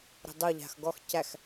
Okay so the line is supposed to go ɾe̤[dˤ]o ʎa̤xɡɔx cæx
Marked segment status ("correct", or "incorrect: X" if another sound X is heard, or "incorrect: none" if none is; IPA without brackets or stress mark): correct